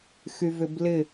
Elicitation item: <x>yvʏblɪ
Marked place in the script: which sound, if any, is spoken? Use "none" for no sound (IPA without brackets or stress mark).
x